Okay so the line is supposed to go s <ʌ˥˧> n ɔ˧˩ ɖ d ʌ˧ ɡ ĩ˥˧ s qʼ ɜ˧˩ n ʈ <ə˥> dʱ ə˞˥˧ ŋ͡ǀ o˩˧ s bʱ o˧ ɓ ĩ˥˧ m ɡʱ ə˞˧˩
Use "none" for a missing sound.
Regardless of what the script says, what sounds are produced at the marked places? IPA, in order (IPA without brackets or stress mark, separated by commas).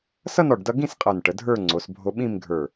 ʌ˥˧, ə˩˧